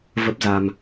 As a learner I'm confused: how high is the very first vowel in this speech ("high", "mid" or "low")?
mid